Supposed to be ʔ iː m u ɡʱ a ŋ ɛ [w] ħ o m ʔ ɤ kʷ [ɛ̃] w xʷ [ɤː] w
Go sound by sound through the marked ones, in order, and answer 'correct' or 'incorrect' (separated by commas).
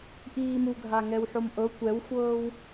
correct, incorrect, correct